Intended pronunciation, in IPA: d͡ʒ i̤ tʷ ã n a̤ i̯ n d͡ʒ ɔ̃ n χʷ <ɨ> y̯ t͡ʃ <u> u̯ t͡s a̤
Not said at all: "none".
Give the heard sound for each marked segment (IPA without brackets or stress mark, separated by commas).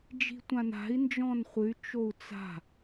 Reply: ɨ, o